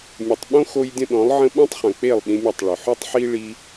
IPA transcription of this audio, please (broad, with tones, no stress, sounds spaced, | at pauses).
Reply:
mʲ ə˨ tˤ ɓ õ˦ x o˦ j dʲ ə̃˦ ɗ ɔ̃˨˦ lˠ ʕ ə̃˦ ɓ ɔ̃˦ tˤ χ œ̃˨ k͡p e˦˨ lˠ ɗ ĩ˧ mʲ œ˦˨ tˤ ɭ ʏ˨ ħ ʉ˦ tˤ ħ i˦ ɭ i˦